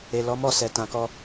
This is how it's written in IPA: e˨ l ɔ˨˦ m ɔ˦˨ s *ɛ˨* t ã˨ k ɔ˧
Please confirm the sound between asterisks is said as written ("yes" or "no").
yes